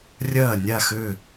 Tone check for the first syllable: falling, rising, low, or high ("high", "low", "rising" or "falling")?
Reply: falling